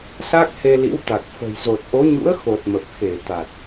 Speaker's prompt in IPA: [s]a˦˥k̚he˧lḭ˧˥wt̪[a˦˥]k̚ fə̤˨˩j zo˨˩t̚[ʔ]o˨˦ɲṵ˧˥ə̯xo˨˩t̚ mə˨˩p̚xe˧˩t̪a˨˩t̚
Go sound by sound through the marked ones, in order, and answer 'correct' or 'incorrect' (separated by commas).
correct, incorrect, correct